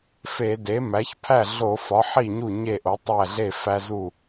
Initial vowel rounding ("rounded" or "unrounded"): unrounded